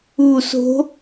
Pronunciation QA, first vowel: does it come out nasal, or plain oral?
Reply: oral